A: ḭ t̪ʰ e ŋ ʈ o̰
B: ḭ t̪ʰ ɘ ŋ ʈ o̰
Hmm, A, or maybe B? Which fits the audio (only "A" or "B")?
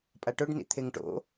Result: A